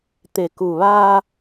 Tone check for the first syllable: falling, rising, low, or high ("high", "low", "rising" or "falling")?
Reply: low